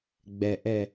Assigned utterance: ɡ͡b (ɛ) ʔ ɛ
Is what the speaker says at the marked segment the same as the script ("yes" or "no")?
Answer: yes